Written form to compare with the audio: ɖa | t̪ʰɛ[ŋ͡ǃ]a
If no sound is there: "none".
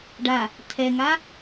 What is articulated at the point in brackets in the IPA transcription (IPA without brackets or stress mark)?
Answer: ŋ